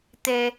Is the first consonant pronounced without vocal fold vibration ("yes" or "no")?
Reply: yes